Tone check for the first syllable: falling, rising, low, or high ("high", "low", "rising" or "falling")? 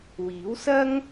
rising